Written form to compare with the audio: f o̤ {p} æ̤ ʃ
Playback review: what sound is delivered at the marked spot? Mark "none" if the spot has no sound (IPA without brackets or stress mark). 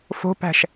p